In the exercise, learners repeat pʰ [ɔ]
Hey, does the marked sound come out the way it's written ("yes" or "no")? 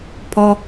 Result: yes